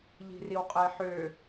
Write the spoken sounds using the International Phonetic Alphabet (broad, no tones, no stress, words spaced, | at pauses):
ʎi̤riwqʼeħø